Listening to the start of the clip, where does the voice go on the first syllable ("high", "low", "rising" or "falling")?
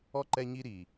high